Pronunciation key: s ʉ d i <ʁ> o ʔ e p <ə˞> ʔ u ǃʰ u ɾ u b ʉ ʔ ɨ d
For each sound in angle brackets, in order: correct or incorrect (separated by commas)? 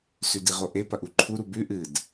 correct, incorrect